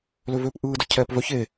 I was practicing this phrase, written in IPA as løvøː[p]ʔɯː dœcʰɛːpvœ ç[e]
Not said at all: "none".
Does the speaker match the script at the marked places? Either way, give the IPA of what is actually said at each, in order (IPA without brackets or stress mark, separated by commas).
p, e